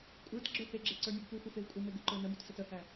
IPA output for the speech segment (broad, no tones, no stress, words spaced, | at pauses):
kʷʼə˞t ɡ͡ǁə˞heɡ͡ǁe ǀə˞nʲuɡpuxʷə fevkʷʼəme ɡuǃə˞nəmut sətəhæ